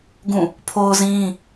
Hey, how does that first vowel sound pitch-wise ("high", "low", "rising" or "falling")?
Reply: falling